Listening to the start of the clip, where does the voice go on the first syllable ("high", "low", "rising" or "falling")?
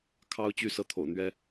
high